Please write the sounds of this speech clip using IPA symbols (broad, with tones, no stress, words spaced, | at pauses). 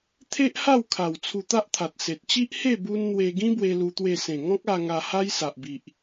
t̪ʰe˦ʔha˥˧wkʰa˨˩w t͡sʰu˧t̪a˦ʔt̪ʰa˨t̚se˨t̚ t͡ɕi˦ʔhe˥˧ bu˧n n̪we˧ɡĩ˦ bwe˦lu˦t̪we˥˧ sẽ˨˩ŋɔ̃˦k̚a˧ ŋa˧ha˦jsa˨ʔbi˨ʔ